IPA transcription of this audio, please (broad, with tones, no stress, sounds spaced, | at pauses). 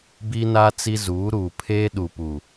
b i˦ n a˦ t͡s i˦ z uː˨˦ ɾ uː˨ pʰ eː˦ ɗ u˨ p u˨